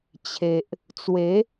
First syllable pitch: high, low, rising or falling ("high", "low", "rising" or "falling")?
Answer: low